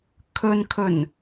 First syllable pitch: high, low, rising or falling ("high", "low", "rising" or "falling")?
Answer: low